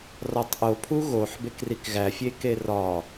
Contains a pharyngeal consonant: yes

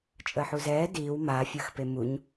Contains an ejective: yes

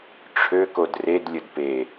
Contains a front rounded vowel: yes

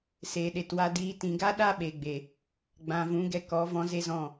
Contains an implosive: yes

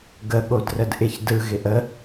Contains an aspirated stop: no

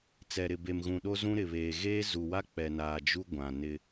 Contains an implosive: yes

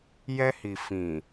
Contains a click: no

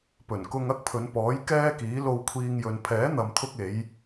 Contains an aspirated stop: yes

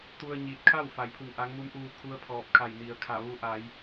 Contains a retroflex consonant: no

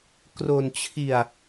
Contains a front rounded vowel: no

